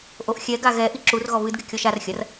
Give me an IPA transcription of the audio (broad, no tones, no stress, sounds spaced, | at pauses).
ʔ o ʔ xʲ ɛ ɡ a ɣ ɛ ʔ i ǁ u r ɣ ɔ β ɨ d ɡ e kʲ ɔ ʃ a r xʲ ɐ r